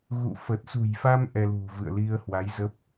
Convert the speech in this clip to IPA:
ɣṵ˧˨ fə˨˩t̚sṳ˨˩jfa˧m ʔɛ˧lṳ˨˩vɨ̰˧˨ə̯ li˧ə̯hwa˨˦jzə˦˥p̚

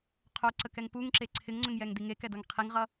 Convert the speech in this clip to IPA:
qʰoǀəkɛŋ puŋǁe ǀʰɪŋŋ͡ǀʏŋjɛŋdi ŋekɛdɤŋ qʰiŋʁʌ

